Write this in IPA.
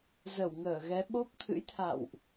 z ə˧˩ w ŋ əː˧˩ ɣ ɛ˨˦ ɓ o˦˥ p̚ t̪ʰ ɨ̰˧˥ j t̪ʰ a̰˧˨ w ʔ

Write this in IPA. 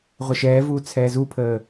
ʁʷ ə ʃ ɛː v uː t͡sʰ ɛː z u pʰ əː

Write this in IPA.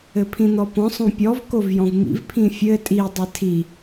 ɘ pʰ ĩ n̪ ɔ p ɔ̃ sˤ õ pʲ ɔ v k o v j ɔ̃ v m ḭ v pʰ ĩ fʲ ɘ tʼ i dˤ ɘ tʰ i

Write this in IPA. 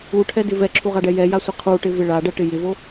u ʈʰ ɛ d ɪ v ɛ ǁʰ u ʁ a ɖ ɛ j ɛ j a sʷ ɪ qʰ u ʈ ɪ v ɪ ɭ a ɖ ɛ ʈ ɪ j ɪ v o

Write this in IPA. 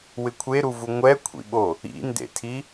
w ɪ kʷʰ e ɾ u v u ŋʷ ɛ kʷʰ ḭ ɓ o | ḭ n d ḛ tʰ i

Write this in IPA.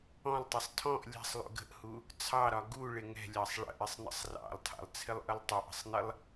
ɔ̃ lˠ tˤ ə sˤ tʰ ɔ̃ ʔ lʲ ɛ̤ sˤ lˠ ṵ ɡ ə̤ ʔ h u | t͡sʰ ɑ ɾ ɒ ɡ u ɭ ɪ ŋ ɛ̤ lʲ ɑ sˤ ɭ ə̰ ʔ ɪ sˤ n ə̰ sˤ r ɑ̰ lˠ tʰ ɑ̰ lˠ t͡sʰ ɪ lˠ ʔ ə lˠ tˤ ə ʔ ə̤ sˤ n ɪ lˠ

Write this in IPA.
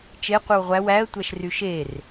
t͡ʃ e qʷ ɯ w ʁʷ æ w æ ə̯ tʷ æ ʃ r y ʃ e r

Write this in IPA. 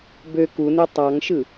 b ø k u n e tˤ ɑ ŋ ʃ ɯ

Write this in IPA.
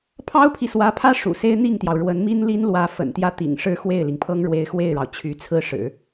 pʰ ɑ˥ ʊ̯ pʰ i˨ s w ä˧˥ pʰ ä˥ ʂ ṵ˨˩ s e˥ ɪ̯ n̪ i˥˩ ŋ t̪ j ɑ˩ ʊ̯ ɻ w ə˧˥ n m i˥ n l i˥ n l w ä˧˥ f ə̰˨˩ n t̪ j ä˥˩ t̪ ḭ˨˩ ŋ ʂ ɻ̩˥˧ x w e˥˩ ɪ̯ l i˩ ŋ pʰ ɤ˥ ŋ ɻ w e˧˥ ɪ̯ x w e˥˩ ɪ̯ ɻ ɑ˩ ʊ̯ t͡ɕʰ y˧˥ t͡sʰ ɹ̩˥ ʂ ɻ̩˨˩˦

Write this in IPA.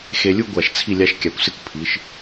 x e˧ lʲ u˥ ɡʷ a˧˩ ʃ t͡sʰ i˥˧ lʲ a˥ ʃ kʲ a˧ kʷ s ɪ˥ kʷ pʰ i˩˧ ʃ

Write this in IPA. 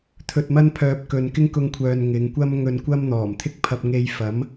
t̪ʰ ɵ˧ t̚ m ɐ˥ n pʰ œː˧ p̚ k ɵ˨ n k ɪ˥ ŋ k ʊ˧ ŋ kʷʰ œː˨ n ŋ ɪ˨˧ ŋ kʷ ɐ˥ m ŋ ɵ˧ n kʷ ɐ˥ m n̪ ɔː˨˩ m t̪ʰ ɪ˥ k̚ pʰ ɐ˧ p̚ ŋ e˧ j f ɐ˨˥ m

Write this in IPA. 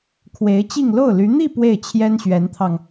kʰ w e˧˥ ɪ̯ t͡ɕ i˥˧ ŋ l o˥˩ ʊ̯ l y˧˥ n̪ i˥˧ p w e˥˩ ɪ̯ t͡ɕʰ j ɛ˥ n ɕ ɥ ɛ˧˥ n t̪ʰ ɑ˧ ŋ

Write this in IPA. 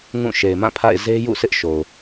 ŋ ũ˦˨ ʃ e˨ ɪ̯ m ã˦˨ pʰ a̰˦˨ ɪ̯ z e˦ j ṵ˦˨ sʰ ɪ˦ ʔ ʃ o˨ ʊ̯

